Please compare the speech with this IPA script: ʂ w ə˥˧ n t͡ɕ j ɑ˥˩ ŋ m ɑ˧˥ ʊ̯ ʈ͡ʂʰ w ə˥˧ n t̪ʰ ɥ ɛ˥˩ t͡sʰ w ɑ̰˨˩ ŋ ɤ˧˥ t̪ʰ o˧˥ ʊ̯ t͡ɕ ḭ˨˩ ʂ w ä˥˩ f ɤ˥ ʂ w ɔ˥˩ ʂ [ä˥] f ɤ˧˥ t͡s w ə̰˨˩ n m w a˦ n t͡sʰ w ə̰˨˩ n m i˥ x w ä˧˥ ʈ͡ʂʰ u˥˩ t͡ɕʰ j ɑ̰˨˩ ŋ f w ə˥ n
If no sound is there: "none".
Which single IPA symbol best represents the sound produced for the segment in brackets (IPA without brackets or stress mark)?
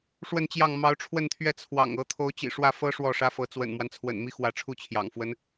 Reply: ä˥